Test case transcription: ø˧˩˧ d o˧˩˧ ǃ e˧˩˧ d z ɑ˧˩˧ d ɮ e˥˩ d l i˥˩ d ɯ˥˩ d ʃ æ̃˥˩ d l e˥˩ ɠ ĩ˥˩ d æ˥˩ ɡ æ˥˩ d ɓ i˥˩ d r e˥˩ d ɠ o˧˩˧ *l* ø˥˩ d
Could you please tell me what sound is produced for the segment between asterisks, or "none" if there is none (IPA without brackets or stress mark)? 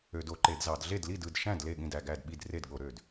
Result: ɾ